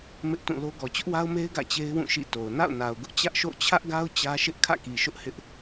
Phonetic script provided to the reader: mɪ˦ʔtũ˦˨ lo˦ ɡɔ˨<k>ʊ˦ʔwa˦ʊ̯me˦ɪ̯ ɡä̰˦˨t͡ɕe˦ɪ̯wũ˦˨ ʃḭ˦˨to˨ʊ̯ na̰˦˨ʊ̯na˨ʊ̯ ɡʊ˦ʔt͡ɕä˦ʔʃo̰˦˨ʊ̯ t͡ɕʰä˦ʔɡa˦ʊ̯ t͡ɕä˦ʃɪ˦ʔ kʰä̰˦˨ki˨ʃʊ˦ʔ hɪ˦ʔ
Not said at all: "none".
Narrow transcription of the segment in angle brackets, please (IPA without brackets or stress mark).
t͡ɕ